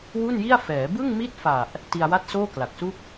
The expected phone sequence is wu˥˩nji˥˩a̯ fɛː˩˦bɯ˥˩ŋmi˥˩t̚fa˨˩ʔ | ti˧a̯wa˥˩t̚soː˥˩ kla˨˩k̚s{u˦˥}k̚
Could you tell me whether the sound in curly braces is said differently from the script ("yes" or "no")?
yes